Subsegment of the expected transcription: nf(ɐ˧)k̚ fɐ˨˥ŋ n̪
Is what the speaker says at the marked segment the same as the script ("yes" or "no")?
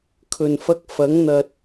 yes